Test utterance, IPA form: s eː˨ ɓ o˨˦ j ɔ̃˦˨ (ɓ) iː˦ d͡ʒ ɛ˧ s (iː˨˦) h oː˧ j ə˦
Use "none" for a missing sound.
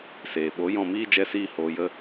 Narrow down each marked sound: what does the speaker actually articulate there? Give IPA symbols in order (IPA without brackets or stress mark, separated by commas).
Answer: m, iː˧